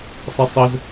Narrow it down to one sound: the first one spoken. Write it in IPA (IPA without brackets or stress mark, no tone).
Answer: sˤ